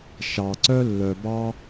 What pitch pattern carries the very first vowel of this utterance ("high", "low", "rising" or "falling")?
low